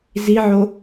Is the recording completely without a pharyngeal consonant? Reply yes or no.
no